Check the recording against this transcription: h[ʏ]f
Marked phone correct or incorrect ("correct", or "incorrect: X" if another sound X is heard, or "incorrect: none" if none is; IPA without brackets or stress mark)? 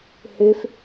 correct